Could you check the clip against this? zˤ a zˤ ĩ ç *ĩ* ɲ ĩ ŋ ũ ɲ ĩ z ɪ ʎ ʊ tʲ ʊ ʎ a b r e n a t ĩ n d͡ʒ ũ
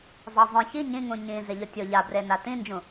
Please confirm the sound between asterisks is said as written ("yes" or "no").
no